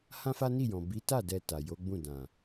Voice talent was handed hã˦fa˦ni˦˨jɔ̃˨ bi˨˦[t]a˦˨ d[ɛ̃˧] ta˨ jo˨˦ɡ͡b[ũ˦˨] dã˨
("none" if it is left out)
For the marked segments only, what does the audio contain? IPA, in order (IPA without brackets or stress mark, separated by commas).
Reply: t, ɛ˧, ũ˦˨